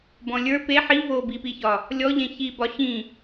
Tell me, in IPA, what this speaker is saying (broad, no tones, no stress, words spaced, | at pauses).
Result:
bɔ̃lʲə˞ pe ħi vobipiçɒ | lʲɔʎẽ çi bɒɕĩ